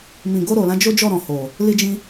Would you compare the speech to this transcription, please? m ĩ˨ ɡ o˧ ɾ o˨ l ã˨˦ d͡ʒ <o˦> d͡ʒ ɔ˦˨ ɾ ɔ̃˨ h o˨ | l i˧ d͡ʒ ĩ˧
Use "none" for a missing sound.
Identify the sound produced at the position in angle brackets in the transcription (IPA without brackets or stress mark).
o˦